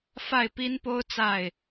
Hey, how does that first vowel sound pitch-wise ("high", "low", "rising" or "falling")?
falling